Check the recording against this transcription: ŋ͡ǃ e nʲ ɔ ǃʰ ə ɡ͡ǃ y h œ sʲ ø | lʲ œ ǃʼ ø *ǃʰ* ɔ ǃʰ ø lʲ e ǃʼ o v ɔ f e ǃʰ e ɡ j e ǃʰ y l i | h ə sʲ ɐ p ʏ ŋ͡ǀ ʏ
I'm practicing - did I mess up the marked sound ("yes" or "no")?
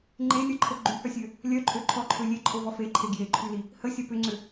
no